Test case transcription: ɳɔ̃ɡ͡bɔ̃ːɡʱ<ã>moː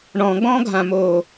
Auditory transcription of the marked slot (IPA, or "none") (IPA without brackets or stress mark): ã